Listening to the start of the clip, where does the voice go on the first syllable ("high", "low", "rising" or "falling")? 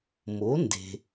rising